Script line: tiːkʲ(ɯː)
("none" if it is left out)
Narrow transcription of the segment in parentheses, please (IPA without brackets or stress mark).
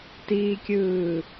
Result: ɯː